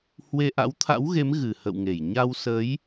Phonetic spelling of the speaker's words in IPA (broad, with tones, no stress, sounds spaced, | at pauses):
h w e˧ ʔ a̰˧˥ w t̪ʰ a̰˧˥ w ɣ e˨˦ m ɣ ɨ˨˩ h ə̰˧˨ w ŋ e˧˩ j ɲ a˧ w s ə˨˦ j